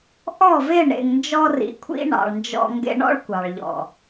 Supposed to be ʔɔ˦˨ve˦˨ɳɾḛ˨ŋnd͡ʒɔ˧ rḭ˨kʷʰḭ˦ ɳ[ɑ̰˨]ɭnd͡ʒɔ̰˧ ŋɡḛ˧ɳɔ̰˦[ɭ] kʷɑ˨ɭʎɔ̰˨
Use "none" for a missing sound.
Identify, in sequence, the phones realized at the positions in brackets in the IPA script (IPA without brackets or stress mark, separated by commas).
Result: ɑ̰˨, ɭ